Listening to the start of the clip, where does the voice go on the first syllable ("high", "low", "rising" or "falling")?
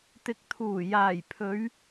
rising